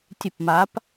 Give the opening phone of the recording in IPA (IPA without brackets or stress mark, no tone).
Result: tʲ